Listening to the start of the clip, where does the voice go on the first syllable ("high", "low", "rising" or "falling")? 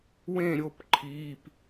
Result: falling